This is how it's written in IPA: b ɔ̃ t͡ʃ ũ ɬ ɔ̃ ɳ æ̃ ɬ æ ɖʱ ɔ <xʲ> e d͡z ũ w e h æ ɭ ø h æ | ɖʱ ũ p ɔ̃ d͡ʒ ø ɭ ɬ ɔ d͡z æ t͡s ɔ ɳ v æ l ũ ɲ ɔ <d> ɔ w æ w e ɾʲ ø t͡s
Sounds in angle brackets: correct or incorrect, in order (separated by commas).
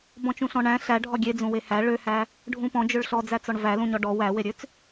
incorrect, incorrect